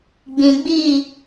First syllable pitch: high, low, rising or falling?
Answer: low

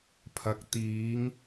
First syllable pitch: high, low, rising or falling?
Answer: low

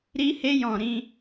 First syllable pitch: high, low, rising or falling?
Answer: high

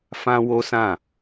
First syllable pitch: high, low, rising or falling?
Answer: high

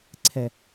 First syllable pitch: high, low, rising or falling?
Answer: low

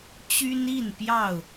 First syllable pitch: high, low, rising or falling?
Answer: high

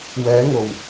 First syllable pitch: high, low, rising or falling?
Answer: rising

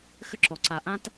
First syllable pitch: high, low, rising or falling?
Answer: high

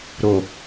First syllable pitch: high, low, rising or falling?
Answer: low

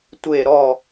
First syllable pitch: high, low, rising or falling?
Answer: falling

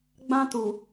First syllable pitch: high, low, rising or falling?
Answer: high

